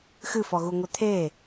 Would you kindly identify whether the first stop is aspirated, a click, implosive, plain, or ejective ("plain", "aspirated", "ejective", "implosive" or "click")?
aspirated